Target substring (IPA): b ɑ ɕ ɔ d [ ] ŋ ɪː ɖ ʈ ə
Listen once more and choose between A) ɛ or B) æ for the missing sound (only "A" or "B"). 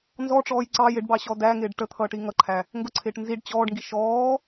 B